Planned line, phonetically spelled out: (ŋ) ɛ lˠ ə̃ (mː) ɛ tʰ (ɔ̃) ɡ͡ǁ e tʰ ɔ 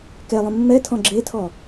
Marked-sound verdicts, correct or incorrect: incorrect: k, correct, correct

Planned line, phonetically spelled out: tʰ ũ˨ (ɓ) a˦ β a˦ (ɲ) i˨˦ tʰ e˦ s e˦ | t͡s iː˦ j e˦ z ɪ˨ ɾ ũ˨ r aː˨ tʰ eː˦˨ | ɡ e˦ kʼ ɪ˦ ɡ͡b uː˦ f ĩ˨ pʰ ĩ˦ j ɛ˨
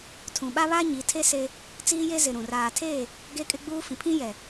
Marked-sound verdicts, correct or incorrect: correct, correct

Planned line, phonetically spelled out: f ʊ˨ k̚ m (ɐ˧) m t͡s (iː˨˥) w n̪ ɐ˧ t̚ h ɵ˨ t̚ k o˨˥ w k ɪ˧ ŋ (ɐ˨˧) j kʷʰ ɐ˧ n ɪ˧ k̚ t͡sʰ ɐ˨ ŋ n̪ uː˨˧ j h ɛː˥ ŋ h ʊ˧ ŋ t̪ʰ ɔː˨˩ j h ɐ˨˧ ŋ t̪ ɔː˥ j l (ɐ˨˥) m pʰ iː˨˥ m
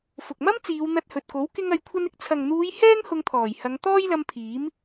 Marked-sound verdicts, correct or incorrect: incorrect: ɐ˥, incorrect: iː˨˧, correct, incorrect: ɐ˧

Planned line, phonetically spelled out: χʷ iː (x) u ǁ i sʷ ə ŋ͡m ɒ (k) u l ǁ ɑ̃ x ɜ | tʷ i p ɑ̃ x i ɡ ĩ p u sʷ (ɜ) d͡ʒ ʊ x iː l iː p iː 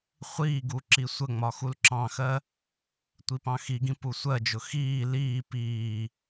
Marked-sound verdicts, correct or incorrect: incorrect: ɡ, incorrect: x, correct

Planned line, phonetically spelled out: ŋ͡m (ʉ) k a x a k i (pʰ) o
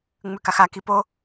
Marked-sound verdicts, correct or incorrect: correct, incorrect: p

